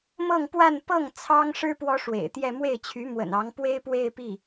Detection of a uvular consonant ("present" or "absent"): absent